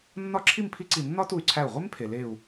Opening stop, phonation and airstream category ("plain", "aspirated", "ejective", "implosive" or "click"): click